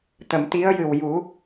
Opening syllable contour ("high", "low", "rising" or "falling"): low